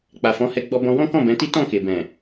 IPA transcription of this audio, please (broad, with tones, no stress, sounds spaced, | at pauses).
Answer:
k͡p a˨ f ɔ̃˨˦ h ɛ˧ ɡ͡b ɔ˧ b ɔ̃˧ w ɔ̃˦ k ɔ̃˦˨ b ɛ̃˨˦ t i˦ t ɔ̃˦˨ k e˨ b ɛ̃˨